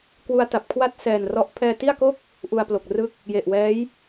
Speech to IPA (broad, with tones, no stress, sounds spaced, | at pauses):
k w u˧ a̯ t a˨˩ p̚ kʰ w a˥˩ t̚ s ɛː˨˩ n r ɔ˦˥ ʔ pʰ ɛː˧ t i˥˩ a̯ k o˥˩ k̚ | ʔ u˧ a̯ p l o˨˩ k̚ r ɯ˥˩ k̚ | j e˨˩ ʔ w ɛː˦˥ j